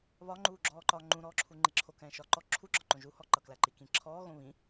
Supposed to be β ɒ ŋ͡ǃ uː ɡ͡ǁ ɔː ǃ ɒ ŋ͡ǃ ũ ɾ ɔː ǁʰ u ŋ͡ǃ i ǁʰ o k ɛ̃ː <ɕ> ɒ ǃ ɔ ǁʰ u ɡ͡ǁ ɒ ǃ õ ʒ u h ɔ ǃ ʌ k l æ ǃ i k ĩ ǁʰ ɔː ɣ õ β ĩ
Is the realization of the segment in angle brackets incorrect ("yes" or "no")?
yes